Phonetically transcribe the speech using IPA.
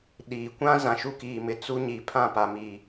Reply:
ɗ iː˨ kʷ ã˦ z ã˨ ʃ u˦ k iː˨ m ɪ˨ t͡s u˦ ɲ i˨ pʰ ã˦˨ p a˨ m i˨

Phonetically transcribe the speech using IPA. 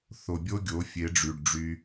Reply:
θ o˨ bʲ o˦ ɡʲ o˨˦ fʲ e˨˦ ɖ͡ʐ y˨ ɖ ɖ͡ʐ y˧

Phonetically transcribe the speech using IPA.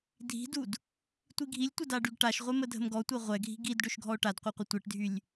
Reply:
dʱ i̤ d u d | tʷ i ɡʱ i lʲ tʷ ə d a ɖ y ɡ ʈ a ʃ ʁʷ e m ə dʱ ə̤ m ɡ ɔ tʷ e ʁʷ ɛ ɡʱ i̤ ɡ i d ɖ ø ʃ ɡʱ ɔ o̯ ʈ a d qʷ i qʷ ə tʷ e ʈ dʱ y lʲ

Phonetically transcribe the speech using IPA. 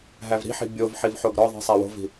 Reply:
ɦ æ v ɾ i̤ ħ i̤ bʲ o v ħ i v ħ o ɡ ɾ ɒ ðˤ i̤ sˤ æ w o̤ v i̤

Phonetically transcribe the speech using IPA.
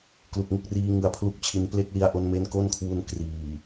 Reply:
k l u˨˩ k̚ ŋ u˥˩ k̚ r iː˦˥ ŋ ɯ˧ a̯ pʰ l u˦˥ k̚ t͡ɕʰ i˧ n p l e˦˥ k̚ l i˧ a̯ ʔ o˧ n m e˦˥ n k o˥˩ n kʰ w u˦˥ n k r iː˨˩

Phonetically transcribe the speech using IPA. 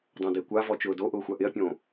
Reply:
dˤ õ d ɪː kʷ a v ɔ t͡ʃ ʊː d o ʔ ʊː xʷ a ʔ ɪ ɐ̯ pʲ õː

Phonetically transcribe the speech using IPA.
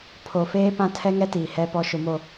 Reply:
pʰ o˨ f eː˦ p ã˦ tʰ ɛ˦ ŋ ɛ˦ t iː˨ h ɛ˦ p ɔ˦ ʃ ʊ˨ m o˨

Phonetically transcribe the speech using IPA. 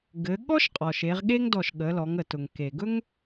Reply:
ɡ ɘ˩˧ ɠ ɔ˥ ʃ qʼ ɔ˩ ʃ e˩˧ ʁ ɠ e˥ ŋ d ɔ˧˩ ʃ ɠ ə˩˧ l ɔ˩˧ ŋ ə˩ t ʊ˩ ŋ k e˩ ɡ ɵ˥ ŋ

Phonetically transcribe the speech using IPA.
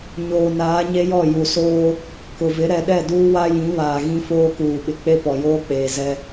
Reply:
ɲ oː˨ n aː˨˦ ɲ e˦ j ɔ˦˨ j u˨ s oː˦ | k ʊ˨ v ɪ˨˦ ɾ ɛ˨ ɗ ɛ˦˨ d uː˦ w a˦ j ĩ˨˦ β aː˨ ɣ ĩ˦ f oː˦ k uː˨ ɓ ɪ˨ k͡p e˦ p ɔ˨ j oː˦ k͡p eː˨ z ɛ˦

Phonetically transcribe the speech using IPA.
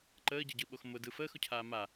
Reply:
ǃ əː ɟ ə ɟ ɯ ɓ o x m ʊ d ɯ f əː x ʊ cʰ aː m a

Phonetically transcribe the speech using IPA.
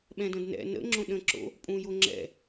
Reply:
ɓ ɛ̃ d ə̃ d n ɛ̰ n ə̰ ŋ͡ǁ õ ɗ ə̃ ǁ o̰ | pʼ ũ j o ŋ͡ǁ ɛ̰

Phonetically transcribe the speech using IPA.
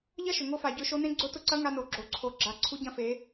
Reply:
ʎ ɐ˥ ʃ ʏ˩ ŋ o˧ f a˩ ɟ ø˧ ʃ o˧˥ n ẽ˥ ɡ͡ǀ ʊ˧˥ t ʊ˧ ǀ ɐ˧˥ ŋ a˧ n o˩˧ ɡ͡ǁ o˩ ǀʰ o˩˧ ɡ͡ǁ a˩˧ ǀʰ u˧˥ ɟ ɐ̃˧ f e˩˧

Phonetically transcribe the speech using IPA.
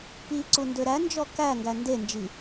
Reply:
p i ǀ u n d ø ɾ æ n d͡ʒ ɔ k æ ŋ ɡ æ n d e n d͡ʒ i

